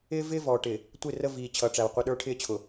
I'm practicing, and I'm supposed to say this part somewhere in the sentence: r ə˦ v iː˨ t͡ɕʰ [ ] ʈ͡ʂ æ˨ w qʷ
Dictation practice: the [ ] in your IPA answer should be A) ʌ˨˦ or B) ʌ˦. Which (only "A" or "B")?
A